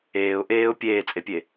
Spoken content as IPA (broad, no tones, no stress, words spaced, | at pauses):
eːʊ̯ ʔeːʊ̯ pʲeːt͡sʼepʲe